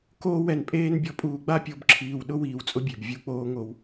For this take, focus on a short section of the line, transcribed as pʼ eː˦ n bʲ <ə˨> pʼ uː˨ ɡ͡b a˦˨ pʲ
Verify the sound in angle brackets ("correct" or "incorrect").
incorrect